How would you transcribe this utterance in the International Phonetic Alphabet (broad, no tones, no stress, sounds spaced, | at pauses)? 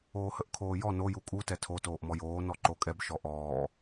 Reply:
oː h ə ʔ kʰ oː j ɔ n o j u kʼ u t ɛ tʰ o t oː ʔ m ɔ j oː n ɔ ǃ o kʼ ɛ b ʃ ɔ ʔ ɔː